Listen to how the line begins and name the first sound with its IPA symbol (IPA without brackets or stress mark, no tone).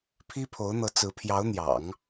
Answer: pʰ